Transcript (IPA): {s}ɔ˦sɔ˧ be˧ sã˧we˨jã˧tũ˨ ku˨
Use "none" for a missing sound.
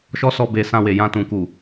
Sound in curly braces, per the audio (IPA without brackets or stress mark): ʃ